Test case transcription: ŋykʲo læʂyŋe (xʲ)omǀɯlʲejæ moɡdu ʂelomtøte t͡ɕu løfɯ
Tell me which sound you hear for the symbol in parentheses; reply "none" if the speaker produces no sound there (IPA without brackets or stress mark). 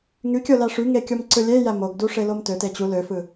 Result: kʲ